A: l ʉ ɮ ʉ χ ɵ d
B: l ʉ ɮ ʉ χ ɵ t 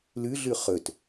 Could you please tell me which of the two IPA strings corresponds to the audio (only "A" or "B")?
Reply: B